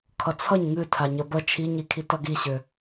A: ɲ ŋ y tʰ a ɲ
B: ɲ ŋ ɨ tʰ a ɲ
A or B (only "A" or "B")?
B